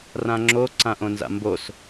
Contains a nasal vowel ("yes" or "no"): yes